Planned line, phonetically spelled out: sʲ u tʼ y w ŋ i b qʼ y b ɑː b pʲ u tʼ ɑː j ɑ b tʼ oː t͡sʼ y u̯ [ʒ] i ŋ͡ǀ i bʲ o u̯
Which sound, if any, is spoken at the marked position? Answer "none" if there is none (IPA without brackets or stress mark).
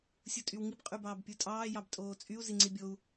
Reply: z